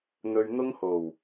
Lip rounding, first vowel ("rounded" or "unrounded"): rounded